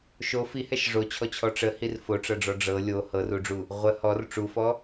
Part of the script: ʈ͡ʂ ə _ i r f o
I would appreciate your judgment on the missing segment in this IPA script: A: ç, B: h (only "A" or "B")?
B